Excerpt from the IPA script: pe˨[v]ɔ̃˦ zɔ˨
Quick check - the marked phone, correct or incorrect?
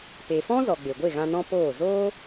incorrect